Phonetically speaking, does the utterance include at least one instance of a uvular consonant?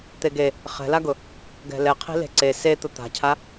yes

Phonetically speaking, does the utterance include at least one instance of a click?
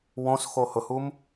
no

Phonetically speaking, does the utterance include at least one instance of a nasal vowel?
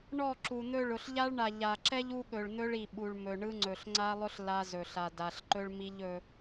no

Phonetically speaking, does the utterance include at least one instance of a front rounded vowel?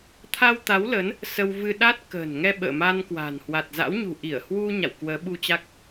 no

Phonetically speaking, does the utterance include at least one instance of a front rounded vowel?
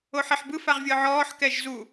no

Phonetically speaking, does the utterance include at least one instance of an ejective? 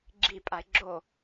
yes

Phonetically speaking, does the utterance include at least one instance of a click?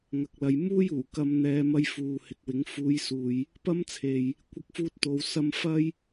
no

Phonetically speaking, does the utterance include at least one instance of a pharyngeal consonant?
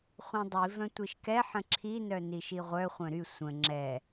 yes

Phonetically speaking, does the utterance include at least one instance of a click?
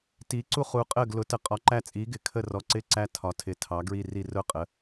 yes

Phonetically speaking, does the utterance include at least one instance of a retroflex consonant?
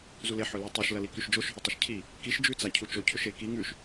no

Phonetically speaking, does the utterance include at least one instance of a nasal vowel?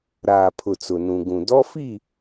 yes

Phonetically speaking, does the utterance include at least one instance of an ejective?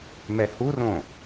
no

